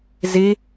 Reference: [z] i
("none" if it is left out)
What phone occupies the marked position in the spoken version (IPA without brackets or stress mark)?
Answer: z